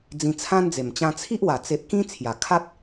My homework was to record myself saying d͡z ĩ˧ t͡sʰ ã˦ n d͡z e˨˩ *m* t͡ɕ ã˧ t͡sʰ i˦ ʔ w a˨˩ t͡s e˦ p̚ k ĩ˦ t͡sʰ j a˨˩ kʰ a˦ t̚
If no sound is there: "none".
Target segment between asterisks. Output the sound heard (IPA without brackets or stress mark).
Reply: m